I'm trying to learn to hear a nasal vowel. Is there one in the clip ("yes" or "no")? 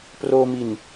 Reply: no